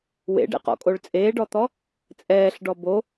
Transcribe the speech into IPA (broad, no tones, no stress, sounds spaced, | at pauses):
w ḛ ɖ ɛ̰ q ɔ̰ kʼ o ɭ t͡sʼ eː ɖ ɔ t̪ ɔ | t͡sʼ ɛː ɬ ɖ ɔ b o